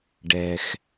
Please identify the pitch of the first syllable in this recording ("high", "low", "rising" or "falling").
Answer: low